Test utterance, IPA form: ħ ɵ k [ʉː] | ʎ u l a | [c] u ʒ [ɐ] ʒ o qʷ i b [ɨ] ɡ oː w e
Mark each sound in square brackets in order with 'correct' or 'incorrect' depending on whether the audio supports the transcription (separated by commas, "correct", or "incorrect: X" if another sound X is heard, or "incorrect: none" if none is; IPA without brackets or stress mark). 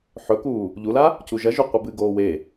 incorrect: uː, correct, correct, correct